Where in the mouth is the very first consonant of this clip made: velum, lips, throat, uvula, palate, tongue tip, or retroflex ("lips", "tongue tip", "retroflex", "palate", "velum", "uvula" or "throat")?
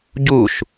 palate